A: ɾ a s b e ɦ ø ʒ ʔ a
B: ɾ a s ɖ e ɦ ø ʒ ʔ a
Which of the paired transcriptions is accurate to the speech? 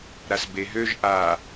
A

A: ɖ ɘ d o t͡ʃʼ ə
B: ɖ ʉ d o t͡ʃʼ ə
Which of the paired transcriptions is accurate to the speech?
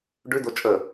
B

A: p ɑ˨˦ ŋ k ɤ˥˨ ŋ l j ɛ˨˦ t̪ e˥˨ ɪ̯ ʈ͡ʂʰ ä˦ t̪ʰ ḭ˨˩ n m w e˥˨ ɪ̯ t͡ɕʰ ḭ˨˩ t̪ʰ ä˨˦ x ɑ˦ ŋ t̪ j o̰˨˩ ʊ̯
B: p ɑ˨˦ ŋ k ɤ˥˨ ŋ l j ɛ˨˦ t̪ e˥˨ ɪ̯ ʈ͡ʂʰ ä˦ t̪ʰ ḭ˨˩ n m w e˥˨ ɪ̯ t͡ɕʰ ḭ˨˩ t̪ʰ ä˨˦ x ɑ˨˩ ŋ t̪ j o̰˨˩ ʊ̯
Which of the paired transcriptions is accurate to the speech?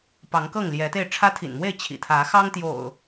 A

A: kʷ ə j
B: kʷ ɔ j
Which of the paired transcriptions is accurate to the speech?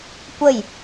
A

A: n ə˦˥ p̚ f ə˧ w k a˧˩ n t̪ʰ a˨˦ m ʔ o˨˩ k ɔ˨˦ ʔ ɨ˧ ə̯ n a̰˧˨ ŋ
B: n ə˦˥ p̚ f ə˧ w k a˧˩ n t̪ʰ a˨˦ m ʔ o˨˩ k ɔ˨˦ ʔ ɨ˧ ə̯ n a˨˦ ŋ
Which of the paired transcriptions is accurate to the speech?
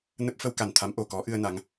B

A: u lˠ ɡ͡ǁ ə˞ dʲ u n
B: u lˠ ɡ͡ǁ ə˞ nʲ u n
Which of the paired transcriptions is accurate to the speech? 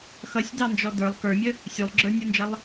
B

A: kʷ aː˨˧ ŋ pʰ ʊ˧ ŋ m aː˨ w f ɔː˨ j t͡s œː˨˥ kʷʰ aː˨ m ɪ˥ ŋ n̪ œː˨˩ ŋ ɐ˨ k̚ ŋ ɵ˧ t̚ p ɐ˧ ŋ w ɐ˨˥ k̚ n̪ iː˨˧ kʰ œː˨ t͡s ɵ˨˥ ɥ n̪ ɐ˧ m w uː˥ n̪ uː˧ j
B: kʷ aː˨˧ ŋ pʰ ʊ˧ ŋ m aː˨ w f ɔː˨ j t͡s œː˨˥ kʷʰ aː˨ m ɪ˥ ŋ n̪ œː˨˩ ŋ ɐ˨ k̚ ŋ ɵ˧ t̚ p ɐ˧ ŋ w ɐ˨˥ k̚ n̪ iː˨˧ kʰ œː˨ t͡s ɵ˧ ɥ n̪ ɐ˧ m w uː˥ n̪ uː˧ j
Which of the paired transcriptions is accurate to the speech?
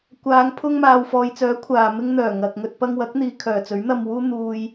A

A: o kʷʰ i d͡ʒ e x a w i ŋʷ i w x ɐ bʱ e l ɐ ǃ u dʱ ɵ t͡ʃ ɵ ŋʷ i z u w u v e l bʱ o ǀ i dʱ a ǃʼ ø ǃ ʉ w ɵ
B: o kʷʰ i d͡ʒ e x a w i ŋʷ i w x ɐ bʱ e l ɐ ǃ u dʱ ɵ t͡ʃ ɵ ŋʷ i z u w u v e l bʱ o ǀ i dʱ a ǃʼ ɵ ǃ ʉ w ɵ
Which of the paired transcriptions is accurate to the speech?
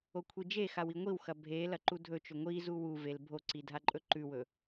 B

